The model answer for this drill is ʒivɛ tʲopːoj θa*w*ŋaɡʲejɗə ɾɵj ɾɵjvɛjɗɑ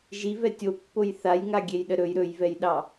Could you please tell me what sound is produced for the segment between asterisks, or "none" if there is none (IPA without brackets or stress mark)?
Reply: j